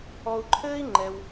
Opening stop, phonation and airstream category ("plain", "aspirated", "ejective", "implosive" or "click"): click